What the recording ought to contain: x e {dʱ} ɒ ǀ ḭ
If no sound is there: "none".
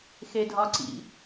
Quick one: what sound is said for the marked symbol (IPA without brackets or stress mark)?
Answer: dʱ